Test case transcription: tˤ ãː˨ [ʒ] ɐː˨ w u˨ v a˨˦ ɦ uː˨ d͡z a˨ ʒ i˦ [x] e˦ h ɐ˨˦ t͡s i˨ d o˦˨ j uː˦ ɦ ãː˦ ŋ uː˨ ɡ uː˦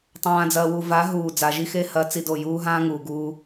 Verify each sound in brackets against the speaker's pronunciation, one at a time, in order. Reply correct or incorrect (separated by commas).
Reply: incorrect, correct